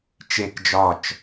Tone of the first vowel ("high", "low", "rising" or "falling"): falling